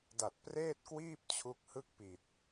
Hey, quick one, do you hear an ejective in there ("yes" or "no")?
no